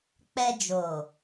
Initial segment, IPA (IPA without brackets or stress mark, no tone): k͡p